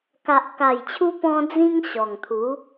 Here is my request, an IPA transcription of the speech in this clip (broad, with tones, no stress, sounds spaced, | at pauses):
k a˨ ʔ k a˨˩ j t͡ɕʰ u˧ p ɔ̃˧ d͡z ĩ˦ ŋ ɕ ɔ˨˩ ŋ t̪ʰ u˨˦